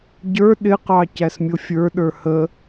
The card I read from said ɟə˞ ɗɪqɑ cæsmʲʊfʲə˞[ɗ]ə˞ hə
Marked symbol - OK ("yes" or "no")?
yes